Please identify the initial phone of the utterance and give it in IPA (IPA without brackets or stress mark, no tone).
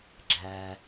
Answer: ɡ͡ǁ